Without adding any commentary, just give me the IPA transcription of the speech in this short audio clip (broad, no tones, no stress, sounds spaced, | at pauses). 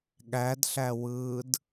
ɠ æ d ɬ æ w ɯː d